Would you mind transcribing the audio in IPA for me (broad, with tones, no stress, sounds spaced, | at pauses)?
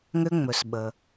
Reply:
ŋ ʏ˧ ŋ͡m ɵ˩ s ɓ ə˩